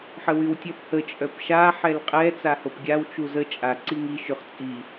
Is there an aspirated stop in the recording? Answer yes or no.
no